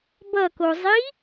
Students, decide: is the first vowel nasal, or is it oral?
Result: oral